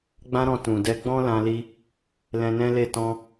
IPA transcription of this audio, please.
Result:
ɡ͡b ã˦ ɾ ɔ̃˧ t ũ˨ d ɛ˧ ɡ͡b ɔ̃˦ l ã˧ l i˧ | l ɛ̃˧ n ɛ̃˦ l e˦˨ t ɔ̃˧

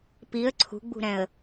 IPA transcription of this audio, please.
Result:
p i ə̯ ǀʰ ṳ ɡ͡b ṳ ɾ ɛ̃ ə̯

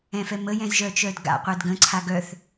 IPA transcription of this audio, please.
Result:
ɛ̃ f ɛ m ə j ɛ̃ z ʒ œ t͡ʃ œ d ɡ a̰ qʷ ɛ d ɡ ə̃ ǀʰ a ɡ œ θ

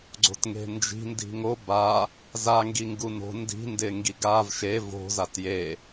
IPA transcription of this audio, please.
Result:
ɡ͡ǀ o̤ t ŋ e̤ n d͡ʒ i̤ n d i̤ ŋ o b a | z a ŋ ɡ i ŋ ɡ u n o̤ n d i̤ n d ɪ ŋ ɡ i ɡ a v ʃ e v o̤ z a t j e

